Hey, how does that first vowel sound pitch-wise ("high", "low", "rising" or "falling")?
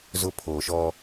high